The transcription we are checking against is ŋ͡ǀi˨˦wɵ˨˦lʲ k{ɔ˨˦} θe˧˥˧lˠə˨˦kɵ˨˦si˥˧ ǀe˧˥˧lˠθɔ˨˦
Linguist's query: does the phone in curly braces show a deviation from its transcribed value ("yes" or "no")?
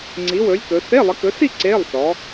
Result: yes